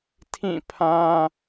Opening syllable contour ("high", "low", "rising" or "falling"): falling